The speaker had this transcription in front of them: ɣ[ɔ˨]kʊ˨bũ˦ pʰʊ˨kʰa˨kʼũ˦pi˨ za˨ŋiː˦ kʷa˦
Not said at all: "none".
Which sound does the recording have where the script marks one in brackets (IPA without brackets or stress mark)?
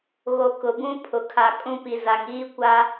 o˨